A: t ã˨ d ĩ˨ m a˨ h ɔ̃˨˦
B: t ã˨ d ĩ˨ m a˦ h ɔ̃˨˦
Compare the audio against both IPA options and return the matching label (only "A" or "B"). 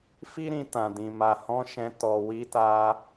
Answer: A